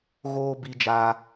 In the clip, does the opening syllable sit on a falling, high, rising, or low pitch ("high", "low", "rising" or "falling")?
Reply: high